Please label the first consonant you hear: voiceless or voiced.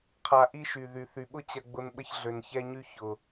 voiceless